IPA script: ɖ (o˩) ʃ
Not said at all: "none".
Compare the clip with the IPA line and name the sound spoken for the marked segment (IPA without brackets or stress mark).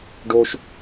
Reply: o˦